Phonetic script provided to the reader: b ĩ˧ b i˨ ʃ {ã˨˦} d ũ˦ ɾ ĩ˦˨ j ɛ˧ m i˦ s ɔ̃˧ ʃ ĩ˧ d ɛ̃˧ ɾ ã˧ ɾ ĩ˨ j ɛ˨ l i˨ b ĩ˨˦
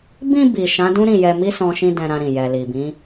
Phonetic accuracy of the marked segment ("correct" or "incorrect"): correct